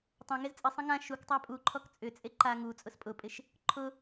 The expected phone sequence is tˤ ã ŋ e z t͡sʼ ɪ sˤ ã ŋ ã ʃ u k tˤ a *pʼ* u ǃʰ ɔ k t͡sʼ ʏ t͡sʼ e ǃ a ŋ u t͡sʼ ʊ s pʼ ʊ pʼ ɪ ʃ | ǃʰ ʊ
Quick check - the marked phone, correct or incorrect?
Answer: correct